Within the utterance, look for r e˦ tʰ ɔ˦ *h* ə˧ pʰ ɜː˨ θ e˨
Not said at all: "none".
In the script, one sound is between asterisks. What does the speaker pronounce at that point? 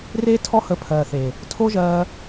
h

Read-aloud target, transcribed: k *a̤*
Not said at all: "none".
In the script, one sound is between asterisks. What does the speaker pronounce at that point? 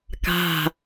a̤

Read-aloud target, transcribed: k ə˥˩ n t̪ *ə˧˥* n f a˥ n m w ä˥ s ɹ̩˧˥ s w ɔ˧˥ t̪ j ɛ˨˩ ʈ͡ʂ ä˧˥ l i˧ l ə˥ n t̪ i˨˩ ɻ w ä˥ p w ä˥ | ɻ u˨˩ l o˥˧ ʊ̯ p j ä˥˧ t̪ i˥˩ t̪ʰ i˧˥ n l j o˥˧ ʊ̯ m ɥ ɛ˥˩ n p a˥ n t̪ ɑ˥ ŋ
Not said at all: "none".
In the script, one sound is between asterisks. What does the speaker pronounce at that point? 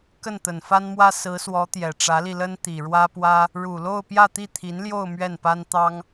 ə˨˩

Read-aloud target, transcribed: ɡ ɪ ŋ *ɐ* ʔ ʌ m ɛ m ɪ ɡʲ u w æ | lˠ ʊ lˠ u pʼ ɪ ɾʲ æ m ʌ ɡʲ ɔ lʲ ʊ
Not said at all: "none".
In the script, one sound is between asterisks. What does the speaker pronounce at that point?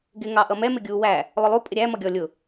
ɑ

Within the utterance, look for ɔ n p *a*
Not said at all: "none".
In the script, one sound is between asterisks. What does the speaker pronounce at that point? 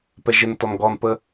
ə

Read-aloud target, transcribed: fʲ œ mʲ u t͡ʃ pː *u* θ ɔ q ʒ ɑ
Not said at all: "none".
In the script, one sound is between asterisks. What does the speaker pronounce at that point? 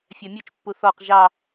u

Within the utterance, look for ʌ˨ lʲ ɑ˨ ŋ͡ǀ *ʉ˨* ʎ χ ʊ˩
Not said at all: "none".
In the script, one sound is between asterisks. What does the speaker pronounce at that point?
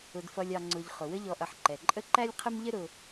ʊ˨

